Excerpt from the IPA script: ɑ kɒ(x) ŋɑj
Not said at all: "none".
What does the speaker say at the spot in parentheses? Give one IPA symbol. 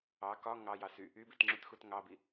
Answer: none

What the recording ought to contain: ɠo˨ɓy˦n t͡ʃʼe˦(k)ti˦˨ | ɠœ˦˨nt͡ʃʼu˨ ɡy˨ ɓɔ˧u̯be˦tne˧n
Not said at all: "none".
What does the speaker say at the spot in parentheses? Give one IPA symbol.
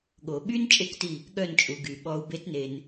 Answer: k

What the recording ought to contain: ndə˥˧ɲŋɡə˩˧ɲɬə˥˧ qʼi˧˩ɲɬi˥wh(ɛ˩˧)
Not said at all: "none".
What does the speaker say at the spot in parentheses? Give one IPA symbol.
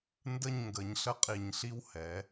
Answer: ɛ˩˧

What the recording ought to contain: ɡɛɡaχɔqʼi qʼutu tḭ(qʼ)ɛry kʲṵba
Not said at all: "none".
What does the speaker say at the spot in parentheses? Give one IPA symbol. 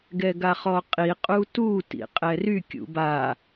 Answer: qʼ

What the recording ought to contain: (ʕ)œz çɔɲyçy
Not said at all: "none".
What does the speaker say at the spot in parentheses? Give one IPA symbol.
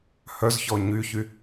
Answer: h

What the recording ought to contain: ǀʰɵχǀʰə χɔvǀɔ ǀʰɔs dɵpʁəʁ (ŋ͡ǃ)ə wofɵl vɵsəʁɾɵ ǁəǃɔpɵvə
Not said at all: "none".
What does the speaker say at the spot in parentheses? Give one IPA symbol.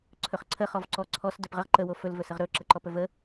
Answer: ǃ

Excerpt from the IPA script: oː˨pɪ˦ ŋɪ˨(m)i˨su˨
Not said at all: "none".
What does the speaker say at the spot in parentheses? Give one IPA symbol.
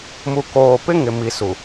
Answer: m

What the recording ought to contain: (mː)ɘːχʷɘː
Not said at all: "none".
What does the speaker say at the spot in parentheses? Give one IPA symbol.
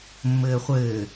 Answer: mː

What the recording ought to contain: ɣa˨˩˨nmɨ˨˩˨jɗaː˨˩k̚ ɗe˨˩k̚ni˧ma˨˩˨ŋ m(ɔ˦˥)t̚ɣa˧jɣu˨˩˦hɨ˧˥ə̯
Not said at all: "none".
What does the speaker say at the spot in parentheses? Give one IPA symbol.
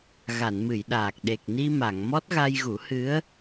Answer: ɔ˦˥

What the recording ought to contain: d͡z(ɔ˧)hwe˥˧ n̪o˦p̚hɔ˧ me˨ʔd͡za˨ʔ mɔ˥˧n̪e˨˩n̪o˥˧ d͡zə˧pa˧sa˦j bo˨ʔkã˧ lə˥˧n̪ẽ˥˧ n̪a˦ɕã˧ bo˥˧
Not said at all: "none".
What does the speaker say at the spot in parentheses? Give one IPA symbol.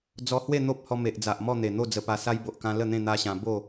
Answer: ɔ˧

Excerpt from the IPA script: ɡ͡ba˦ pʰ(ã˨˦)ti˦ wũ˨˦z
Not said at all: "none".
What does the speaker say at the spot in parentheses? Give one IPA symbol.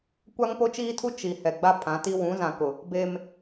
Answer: ã˨˦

